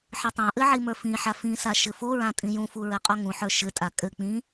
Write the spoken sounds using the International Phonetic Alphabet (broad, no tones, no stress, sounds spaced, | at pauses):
ħ ɘ tˤ õ ʔ ɘ ʕ i m ə˞ f ĩ ħ a f ĩ s a ʃ ɘ f o ɹ ã tʼ ĩ j ũ f u ɹ ɘ qʼ o ŋ ũ ħ ə˞ ʃ ɘ tʼ a kʼ ɘ k͡p ĩ